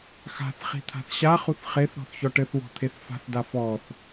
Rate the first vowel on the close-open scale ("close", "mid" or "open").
open